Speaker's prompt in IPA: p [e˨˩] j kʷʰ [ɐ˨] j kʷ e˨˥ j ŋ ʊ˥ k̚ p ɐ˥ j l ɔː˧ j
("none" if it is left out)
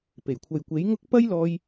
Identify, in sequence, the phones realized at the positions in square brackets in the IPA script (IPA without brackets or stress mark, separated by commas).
e˨˩, ɐ˨